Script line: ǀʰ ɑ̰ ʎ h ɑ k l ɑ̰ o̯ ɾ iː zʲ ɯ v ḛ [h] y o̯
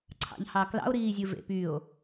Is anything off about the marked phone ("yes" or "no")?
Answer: yes